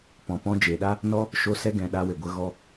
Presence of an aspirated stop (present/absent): absent